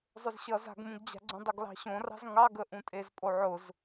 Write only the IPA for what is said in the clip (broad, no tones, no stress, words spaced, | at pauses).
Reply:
zˤʊzɕʌ za̤ɡmũɡd͡ʑa̤ɡ͡ǀũ dˤʌɡlɑ̤ɕõrɑ̤z ŋɑɡəʔũtʼez pʼoʕʊz